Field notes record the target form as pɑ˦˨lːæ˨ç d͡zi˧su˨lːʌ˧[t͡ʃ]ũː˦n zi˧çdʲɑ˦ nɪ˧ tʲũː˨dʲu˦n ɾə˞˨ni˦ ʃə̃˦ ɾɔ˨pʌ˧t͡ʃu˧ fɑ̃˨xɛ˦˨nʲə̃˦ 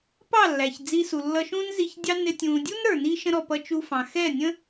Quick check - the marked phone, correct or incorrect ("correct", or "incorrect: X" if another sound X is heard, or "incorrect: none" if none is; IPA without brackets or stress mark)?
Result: incorrect: ʃ